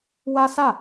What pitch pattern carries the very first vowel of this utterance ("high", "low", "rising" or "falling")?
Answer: high